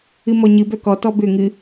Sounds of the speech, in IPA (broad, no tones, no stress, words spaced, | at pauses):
ɨmɔɲɨbœ kɔtɔ bʏ ŋɨ